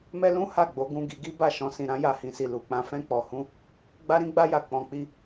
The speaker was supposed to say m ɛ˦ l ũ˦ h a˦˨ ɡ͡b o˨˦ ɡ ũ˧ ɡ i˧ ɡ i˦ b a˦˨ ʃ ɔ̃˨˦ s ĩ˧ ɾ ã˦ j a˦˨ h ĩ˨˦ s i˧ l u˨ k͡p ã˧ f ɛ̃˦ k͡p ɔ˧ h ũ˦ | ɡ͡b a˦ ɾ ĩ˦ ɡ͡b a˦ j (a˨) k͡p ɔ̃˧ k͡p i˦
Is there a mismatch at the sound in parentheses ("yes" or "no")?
yes